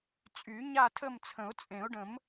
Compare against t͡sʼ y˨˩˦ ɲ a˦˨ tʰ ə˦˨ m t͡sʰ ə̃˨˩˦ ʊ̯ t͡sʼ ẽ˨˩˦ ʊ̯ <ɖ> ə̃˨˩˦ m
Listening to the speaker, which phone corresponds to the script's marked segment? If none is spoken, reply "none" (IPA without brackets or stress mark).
ɖ